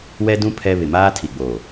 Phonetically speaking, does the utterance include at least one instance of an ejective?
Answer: no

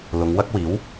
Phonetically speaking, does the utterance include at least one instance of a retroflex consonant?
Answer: no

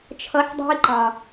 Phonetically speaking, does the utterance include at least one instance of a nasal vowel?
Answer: yes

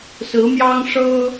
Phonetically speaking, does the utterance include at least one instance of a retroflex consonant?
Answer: yes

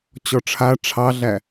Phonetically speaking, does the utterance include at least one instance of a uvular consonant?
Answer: no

